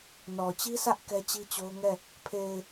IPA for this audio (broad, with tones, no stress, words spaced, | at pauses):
nɔ˨t͡ɕi˦sä˦ʔ kɛ˦t͡ɕi˦t͡ɕo˦ʊ̯ŋɛ˦˨ | pʰe˨ɪ̯